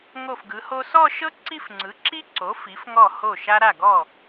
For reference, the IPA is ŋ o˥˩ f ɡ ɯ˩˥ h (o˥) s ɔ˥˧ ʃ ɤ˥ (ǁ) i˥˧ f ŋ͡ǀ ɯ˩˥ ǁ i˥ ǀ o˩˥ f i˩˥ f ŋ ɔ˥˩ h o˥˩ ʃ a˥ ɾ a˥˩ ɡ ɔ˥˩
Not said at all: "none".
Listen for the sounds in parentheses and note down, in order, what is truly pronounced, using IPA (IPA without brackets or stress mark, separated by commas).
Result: o˥, ǀ